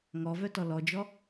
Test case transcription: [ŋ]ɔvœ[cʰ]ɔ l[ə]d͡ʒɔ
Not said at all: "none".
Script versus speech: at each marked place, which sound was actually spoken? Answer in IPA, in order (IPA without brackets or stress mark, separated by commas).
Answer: ŋ, t, ɔ